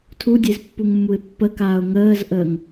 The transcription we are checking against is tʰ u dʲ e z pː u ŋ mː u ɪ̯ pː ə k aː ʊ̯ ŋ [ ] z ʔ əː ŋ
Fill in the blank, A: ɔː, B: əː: B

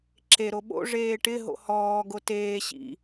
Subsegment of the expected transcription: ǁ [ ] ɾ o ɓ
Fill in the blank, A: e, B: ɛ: A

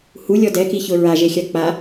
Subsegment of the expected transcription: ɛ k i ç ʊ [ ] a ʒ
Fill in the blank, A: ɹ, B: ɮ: A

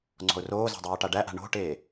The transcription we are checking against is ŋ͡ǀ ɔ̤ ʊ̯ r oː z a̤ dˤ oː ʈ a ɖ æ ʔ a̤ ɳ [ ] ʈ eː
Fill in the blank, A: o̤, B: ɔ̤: A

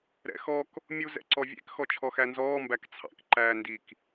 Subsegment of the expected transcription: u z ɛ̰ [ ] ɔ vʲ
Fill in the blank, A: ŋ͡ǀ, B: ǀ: B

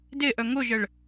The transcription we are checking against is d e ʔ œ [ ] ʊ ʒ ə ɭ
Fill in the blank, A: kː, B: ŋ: B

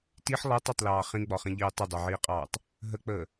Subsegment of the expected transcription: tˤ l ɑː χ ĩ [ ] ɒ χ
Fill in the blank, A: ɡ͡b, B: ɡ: A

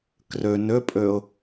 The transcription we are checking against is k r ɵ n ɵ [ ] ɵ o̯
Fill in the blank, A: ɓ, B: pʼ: B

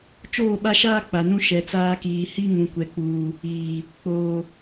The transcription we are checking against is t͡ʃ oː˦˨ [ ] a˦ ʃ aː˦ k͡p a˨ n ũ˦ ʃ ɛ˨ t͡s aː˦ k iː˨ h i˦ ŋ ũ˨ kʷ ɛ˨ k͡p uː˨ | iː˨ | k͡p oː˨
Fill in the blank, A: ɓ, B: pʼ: A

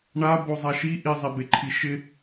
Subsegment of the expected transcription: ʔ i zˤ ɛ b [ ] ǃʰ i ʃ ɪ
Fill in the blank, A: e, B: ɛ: A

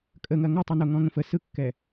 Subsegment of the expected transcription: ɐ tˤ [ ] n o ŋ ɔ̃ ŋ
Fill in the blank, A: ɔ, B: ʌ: B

